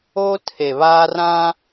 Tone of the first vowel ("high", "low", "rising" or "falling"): high